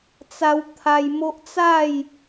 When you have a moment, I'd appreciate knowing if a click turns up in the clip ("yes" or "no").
no